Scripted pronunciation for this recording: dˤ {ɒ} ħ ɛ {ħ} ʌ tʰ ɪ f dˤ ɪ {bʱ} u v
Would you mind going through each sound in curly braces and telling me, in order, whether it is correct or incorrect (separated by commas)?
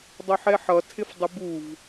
incorrect, correct, incorrect